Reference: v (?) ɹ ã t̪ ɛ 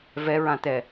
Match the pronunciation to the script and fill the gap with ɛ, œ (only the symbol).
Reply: ɛ